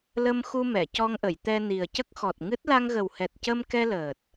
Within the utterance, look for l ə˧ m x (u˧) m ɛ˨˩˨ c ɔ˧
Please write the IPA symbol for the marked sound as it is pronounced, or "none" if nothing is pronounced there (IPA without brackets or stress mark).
u˧